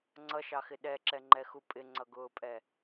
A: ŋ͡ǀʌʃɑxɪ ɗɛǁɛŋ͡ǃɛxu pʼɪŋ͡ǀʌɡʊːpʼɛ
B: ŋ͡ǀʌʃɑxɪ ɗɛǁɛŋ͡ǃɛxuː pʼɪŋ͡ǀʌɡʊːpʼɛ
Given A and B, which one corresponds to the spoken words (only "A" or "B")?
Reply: A